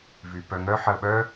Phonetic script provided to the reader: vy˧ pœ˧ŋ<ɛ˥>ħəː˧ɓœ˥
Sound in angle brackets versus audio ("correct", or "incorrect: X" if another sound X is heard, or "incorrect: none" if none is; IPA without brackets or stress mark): incorrect: œ˥